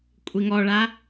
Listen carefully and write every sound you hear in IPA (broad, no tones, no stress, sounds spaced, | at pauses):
kʷʼ i ŋ ɔ ɭ a